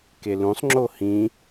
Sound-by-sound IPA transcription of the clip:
kelũsˤ ŋ͡ǁohĩ

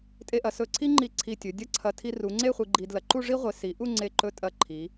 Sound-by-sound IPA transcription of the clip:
tʼe˧ʔɐ˩˧sɵ˧˩ǀʰi˥ ŋ͡ǃi˧˩ ǀʰi˧˩tʲɵ˩˧ dʲɐ˥ǀʰɐ˧ tʰi˧ru˩˧ŋ͡ǀe˥˧ χʷi˧ɡ͡ǃi˧dlɐ˧ ǃu˥˧ʐi˥ʁʷe˩˧ si˩˧ ʔu˥˧ŋ͡ǀe˧˩ǃɵ˧tʼɐ˧˩ ǃʰi˩˧

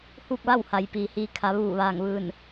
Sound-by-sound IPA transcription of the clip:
huː˥˨k̚ʋa˥˨wha˩˧j piː˩hiː˧ kʰa˩˧ ʋuː˧˩ ʋaː˧˩ŋʋɯː˧˩n

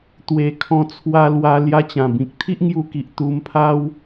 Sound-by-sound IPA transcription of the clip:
t̪we˨˩kʰɔ̃˧t͡sʰwa˧ lwa˧ lja˧t͡ɕã˨˩ bĩ˨k̚t̪ʰi˦ʔŋju˧ki˨ʔ t̪u˧mpʰa˦w

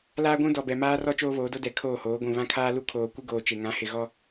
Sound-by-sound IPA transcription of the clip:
laː˦ɡʷũ˦ dɔ˨bɛ˨maː˦rɔ˦ t͡ʃoː˦βoː˨˦do˦ dɛ˨kʰoː˦˨hoː˨˦ ɡʷũ˨βã˦kʰaː˦ lu˦kʰoː˨ kʷɪ˦ɡoː˨t͡ʃe˨ ŋã˨˦hɪ˨ɣɔ˦

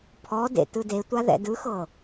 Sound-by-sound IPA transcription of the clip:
pʰɔ dḛtɯde tʷaðɛ̰dɯxɤ

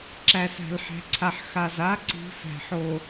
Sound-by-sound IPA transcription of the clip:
ǁæ˨s æ̤˨lħæ̤˨ǀʰa˨ħ xa˨za˦ǀi̤˨˦ fæ̤˨ħo˨

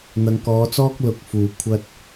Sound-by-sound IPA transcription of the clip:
n̪ɐ˨˧ŋkɔː˨˧t͡sɔː˥k̚ lʊ˨k̚fuː˨˩ kʷʰɐ˧t̚

